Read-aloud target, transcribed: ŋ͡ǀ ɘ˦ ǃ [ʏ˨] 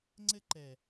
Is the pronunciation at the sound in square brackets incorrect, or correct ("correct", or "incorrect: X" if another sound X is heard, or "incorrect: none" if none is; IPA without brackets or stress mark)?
incorrect: ɛ˨